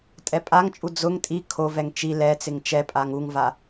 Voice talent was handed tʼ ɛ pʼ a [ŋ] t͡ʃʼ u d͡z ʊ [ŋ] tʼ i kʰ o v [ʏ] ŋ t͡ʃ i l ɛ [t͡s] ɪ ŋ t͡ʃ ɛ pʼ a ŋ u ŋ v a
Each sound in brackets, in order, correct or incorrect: correct, correct, incorrect, correct

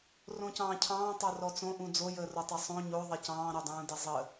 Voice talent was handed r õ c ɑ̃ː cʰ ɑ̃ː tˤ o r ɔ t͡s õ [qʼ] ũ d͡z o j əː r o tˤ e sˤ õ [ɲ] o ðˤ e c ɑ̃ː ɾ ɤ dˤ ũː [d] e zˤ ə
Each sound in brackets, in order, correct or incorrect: incorrect, correct, correct

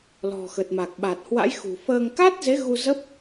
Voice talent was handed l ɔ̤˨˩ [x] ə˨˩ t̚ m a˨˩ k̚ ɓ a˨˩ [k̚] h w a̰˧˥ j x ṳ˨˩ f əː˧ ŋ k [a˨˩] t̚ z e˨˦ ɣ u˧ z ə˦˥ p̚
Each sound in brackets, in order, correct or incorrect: correct, incorrect, incorrect

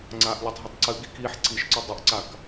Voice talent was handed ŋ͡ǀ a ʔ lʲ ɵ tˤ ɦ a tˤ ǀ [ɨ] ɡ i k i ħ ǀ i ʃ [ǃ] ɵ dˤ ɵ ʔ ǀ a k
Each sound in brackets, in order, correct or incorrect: correct, incorrect

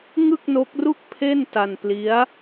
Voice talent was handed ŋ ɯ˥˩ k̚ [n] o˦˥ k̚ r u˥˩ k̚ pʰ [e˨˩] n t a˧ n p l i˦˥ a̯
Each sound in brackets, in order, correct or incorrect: correct, incorrect

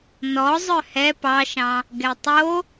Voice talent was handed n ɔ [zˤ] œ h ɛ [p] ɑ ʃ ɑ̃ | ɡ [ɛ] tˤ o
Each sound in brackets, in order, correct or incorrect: correct, correct, correct

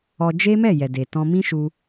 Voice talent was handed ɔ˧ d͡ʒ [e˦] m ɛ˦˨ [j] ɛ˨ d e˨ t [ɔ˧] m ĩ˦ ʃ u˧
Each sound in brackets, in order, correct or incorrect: correct, correct, incorrect

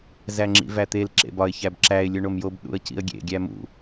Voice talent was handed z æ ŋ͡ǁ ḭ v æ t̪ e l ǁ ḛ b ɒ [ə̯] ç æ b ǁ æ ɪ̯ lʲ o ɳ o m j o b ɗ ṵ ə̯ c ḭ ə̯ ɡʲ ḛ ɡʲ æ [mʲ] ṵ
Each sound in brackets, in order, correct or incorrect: incorrect, incorrect

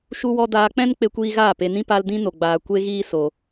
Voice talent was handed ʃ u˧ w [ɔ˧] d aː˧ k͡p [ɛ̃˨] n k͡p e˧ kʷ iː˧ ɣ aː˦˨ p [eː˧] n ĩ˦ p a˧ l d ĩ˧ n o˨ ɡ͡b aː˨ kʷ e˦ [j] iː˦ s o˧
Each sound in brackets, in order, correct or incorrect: correct, incorrect, incorrect, incorrect

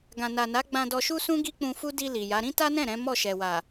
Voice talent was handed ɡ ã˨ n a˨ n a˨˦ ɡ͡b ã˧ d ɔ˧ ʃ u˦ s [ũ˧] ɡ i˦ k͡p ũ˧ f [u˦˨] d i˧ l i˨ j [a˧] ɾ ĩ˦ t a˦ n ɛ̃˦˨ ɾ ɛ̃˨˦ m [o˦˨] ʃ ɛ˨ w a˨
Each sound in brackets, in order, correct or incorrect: incorrect, incorrect, incorrect, incorrect

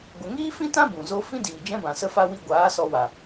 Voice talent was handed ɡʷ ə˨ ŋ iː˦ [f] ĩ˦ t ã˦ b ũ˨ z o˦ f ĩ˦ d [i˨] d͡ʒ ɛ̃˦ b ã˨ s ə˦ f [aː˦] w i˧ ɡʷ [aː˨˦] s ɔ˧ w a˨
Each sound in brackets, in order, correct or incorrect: correct, incorrect, incorrect, correct

